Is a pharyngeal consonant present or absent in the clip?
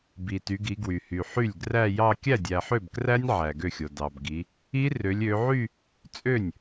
present